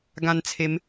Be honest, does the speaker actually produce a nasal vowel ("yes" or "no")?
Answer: yes